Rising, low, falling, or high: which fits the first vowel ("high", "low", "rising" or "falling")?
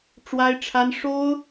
high